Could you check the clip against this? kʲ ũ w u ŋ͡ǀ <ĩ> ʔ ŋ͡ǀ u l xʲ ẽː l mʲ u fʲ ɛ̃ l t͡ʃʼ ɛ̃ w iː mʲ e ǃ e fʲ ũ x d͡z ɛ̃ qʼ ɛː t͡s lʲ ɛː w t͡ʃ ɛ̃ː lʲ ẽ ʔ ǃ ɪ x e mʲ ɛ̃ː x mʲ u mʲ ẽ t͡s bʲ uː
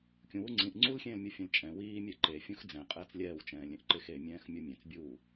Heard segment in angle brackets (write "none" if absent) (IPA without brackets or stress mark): ĩ